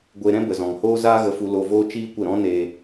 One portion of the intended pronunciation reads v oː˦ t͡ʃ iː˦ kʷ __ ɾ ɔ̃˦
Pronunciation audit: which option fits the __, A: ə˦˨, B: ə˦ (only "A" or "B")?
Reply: A